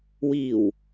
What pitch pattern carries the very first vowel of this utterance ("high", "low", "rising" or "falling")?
low